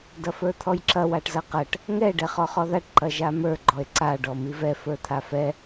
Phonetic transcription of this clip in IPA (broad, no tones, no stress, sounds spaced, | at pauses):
d ɐ f ə˞ t̪ʰ ɔ j ǁ ɐ w a ʈ z ɐ q ɐ ʈ | ŋ ɛ ɖ ɛ χ ɔ χ ɔ ð a ʈ ǃ ɐ ʒ a m ə˞ ɡ͡ǃ ɔ e̯ ǀ a ɖ ɔ m i v ɛ f ə˞ t̪ʰ a f ɛ